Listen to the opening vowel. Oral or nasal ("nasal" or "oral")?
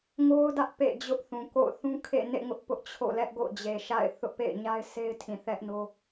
oral